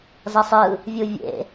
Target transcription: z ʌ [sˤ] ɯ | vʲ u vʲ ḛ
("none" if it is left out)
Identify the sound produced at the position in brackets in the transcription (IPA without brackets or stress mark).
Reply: sˤ